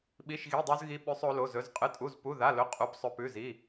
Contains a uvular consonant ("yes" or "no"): yes